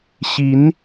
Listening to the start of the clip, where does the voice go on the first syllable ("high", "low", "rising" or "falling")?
rising